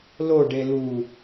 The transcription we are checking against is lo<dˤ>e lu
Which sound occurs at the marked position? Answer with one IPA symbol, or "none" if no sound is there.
ɖ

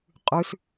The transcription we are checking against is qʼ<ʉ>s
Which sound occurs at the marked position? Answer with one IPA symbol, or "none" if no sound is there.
ʉ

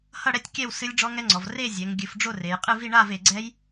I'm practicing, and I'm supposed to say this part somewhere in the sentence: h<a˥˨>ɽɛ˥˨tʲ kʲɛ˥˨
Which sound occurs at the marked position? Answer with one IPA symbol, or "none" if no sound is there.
ʌ˥˨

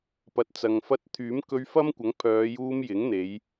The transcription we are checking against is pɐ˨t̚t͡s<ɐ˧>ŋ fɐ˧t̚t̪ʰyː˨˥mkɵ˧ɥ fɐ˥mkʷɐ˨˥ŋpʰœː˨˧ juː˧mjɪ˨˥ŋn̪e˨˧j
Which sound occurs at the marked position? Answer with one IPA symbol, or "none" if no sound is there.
ɐ˨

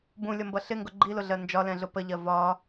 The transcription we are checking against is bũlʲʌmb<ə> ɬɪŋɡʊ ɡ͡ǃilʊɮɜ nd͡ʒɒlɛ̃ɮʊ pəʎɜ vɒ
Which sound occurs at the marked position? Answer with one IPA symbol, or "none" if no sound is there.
ʌ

